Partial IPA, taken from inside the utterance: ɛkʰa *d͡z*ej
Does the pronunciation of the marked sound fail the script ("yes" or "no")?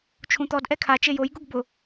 yes